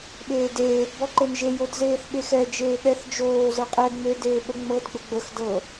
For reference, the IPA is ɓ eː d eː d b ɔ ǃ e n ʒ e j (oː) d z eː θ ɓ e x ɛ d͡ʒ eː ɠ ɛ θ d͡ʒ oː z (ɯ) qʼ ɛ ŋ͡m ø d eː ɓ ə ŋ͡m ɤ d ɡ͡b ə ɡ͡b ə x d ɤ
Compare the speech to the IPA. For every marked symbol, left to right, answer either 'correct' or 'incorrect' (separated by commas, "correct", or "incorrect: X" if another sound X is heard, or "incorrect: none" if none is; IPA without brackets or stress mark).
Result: incorrect: o, incorrect: ɤ